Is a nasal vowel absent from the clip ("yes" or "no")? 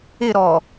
yes